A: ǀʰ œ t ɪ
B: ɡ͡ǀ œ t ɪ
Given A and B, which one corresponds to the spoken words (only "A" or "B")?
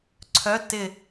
A